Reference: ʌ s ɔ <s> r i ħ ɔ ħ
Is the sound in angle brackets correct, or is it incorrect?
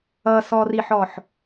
incorrect